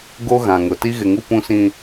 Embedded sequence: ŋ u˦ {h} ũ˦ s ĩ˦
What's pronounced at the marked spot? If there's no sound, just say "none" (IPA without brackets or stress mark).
p